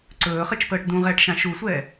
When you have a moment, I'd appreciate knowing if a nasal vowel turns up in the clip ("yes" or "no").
yes